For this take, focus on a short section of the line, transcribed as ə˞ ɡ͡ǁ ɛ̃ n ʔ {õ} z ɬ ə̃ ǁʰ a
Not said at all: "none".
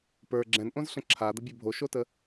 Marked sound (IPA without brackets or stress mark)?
õ